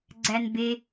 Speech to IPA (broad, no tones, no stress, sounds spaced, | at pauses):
ɡ͡ǀ æ n b e